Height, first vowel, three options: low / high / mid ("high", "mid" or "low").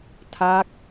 low